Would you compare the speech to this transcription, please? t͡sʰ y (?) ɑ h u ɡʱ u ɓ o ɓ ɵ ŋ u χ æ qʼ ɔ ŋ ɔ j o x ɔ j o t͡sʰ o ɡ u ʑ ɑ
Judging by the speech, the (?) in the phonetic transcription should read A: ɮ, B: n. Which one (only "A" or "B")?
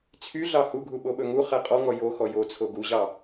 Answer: A